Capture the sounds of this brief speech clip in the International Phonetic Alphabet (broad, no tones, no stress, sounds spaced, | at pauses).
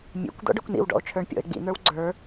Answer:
mʲ ḛ kʷ d̪ ɔ̰ ɖ ə˞ kʷ n ḭ w ɖ ɔ̰ o̯ t͡ʃʰ ə˞ ɳ pʲ ɔ̰ e̯ ɡ͡b ḭ n̪ ə˞ w ɡ͡ǀ ə˞